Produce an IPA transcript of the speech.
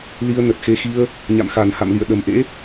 l i˧ ə̯ n ə˨˩ t̚ x e˧ x i˧ ə̯ | ɲ a̰˧˨ m x a˨˩ n h a̰˧˨ m l ḭ˧˨ ə̯ ɗ ə˨˩ m ʔ ḛ˧˥

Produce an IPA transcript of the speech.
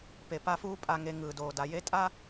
p e˨ p a˦ f uː˦ pʼ a˨ ŋ e˨ ŋ ɯː˨ d oː˨ d a˨ j e˦ tʼ a˦

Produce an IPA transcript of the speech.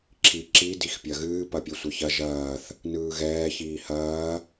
ǁʰ i ǁ i d i x pʲ ɐ ɣ ɨː p ɐ pʲ ɛ sʷ ɐ ç ɐ ʒ ɐː θ | n ɯː ɣ ɛː ç iː h ɐː

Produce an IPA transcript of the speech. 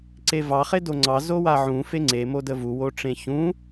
ǀ e v ɑ χ e d o ŋ͡ǀ ɑ z o w a ʕ ũ f e ŋ͡ǀ e m o d ə v u w o ʈ͡ʂ ẽ ç ũ

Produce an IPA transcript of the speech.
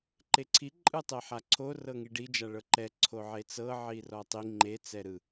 ǃ e ǀʰ i ǃʼ ɯ tˤ e ħ a ǀʰ o r ɤ ŋ i ɖ i d͡ʒ a ɭ ɤ ǃ ɛ ǀʰ o ʕ e t͡s ɤ ʕ i r ɔ tˤ i ŋ͡ǃ e t͡s ɛ ɾ ɯ

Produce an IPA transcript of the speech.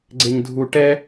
ɡ͡ǀ e ɲ dʱ u ʈ ɛ

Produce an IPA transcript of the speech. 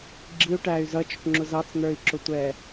ɡ͡ǁ i u̯ ʈ æː y̯ z ʌ t͡ʃ ʊ ʈ ŋ͡ǁ ʊ z ɑ t͡s n̪ ə˞ i̯ ǁ ʊ tʷ ɛː

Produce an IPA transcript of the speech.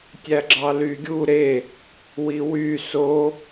tʲ æ ɡ͡ǁ ɑ l y ɡʲ u ɾ e | w i w y s o

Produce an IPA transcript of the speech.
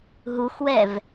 ɦ u x w ɛ v

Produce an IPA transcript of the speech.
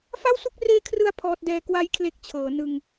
f a˥˩ w s u˥˩ k̚ r eː˦˥ kʰ r ɯ˧ a̯ pʰ ɔː˦˥ t̚ d ɛː˦˥ k w a˦˥ j kʰ l e˦˥ k̚ t͡ɕʰ ɤː˩˦ n ɯ˧ ŋ

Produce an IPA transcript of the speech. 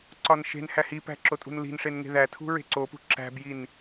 ǀ ɒ n ʃ e̤ n h æ h i p æ̤ ǁ o tʼ ṳ n l i̤ n ʂ e n ŋ e̤ ð æ tʰ ṳ ɹ e̤ ǀ o p ṳ ǁ æ̤ b j i n

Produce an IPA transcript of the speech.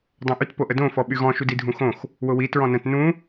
dˤ õ ʔ y t p o ʔ ə d õ f ɔ ɓ y ɣ ɔ̃ ʃ u d i dʱ ũ x õ x | w ʊ w i t ɹ ɔ̃ n ə̃ t n ũ

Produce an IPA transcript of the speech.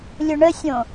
lʲ ʊ ɳ ə sʲ õ

